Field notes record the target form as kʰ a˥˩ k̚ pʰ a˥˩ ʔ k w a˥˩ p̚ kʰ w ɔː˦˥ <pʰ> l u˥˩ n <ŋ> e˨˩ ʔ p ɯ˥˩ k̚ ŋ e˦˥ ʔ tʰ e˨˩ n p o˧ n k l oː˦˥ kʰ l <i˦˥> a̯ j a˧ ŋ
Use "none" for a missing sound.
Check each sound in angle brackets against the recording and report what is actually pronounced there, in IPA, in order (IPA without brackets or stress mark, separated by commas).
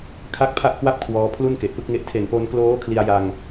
pʰ, k, i˧